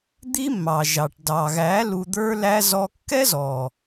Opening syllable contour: high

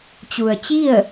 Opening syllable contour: low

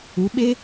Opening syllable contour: rising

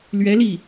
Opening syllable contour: rising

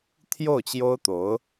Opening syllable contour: falling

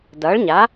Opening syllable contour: rising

